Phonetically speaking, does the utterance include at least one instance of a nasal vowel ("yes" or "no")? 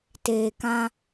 yes